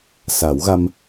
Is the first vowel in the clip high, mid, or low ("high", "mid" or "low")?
low